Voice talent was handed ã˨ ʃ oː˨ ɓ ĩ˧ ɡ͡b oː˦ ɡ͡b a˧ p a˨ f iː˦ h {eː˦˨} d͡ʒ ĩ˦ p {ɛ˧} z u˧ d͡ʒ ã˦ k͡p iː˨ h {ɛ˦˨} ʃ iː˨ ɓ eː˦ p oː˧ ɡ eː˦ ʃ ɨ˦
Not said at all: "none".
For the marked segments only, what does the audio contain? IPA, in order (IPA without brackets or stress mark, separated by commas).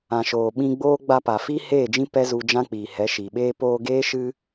eː˦˨, ɛ˦, ɛ˨˦